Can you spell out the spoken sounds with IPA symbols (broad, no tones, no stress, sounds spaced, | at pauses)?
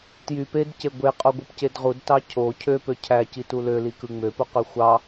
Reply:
t j y p e d c e ɡʷ e qʼ o ɡʷ ɯ p c e d ʁ u d t ɑ cʰ o cʰ ø p ø cʰ æ c i t u l ø l i k ɯ ŋ͡m ø p u q ø xʷ ɑ